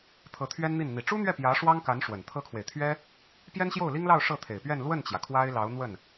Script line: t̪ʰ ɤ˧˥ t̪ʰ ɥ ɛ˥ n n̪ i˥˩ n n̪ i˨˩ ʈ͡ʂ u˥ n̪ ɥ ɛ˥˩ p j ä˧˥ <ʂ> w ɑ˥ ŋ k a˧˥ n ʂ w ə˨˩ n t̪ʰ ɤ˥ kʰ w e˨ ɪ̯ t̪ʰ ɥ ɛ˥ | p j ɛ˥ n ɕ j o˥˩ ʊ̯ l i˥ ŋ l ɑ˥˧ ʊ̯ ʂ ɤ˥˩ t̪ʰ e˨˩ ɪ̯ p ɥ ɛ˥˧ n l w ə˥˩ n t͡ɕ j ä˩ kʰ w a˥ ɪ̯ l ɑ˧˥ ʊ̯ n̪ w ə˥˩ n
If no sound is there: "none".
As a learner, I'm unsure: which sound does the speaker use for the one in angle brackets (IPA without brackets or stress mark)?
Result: ʂ